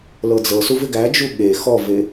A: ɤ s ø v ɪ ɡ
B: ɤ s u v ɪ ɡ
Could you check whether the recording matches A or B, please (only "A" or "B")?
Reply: B